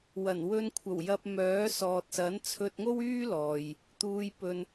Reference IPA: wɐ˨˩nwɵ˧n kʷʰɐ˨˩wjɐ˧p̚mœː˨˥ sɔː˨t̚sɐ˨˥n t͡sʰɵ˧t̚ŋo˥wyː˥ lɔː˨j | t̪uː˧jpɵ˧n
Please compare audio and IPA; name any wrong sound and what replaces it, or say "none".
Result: none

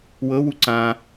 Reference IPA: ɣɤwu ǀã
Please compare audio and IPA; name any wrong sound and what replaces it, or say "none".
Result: ɣ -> w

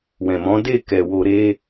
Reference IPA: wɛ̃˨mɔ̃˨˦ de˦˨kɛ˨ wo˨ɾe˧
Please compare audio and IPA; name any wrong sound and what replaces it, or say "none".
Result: none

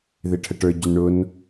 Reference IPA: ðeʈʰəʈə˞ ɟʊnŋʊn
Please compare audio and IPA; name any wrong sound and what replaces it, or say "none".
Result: ŋ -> ɳ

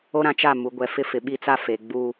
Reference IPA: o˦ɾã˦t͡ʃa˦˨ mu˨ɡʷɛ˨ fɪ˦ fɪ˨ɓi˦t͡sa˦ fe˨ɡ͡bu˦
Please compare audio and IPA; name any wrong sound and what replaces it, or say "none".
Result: none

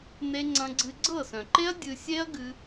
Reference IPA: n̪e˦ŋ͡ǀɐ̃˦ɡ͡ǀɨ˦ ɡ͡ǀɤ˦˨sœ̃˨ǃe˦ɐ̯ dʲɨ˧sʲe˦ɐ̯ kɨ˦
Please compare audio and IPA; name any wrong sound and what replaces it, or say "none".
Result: k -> ɡ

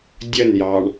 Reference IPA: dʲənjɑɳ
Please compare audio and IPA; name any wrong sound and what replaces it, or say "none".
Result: none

